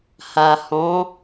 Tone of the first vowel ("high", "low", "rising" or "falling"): low